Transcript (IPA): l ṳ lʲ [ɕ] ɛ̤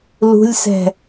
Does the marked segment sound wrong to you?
yes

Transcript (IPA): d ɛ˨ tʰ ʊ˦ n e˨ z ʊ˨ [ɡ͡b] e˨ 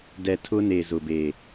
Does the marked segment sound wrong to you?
yes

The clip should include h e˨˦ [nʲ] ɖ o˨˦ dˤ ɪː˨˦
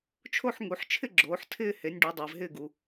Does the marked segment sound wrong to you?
no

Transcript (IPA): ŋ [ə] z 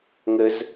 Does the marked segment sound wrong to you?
no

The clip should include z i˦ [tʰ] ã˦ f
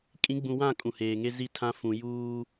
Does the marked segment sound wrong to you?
no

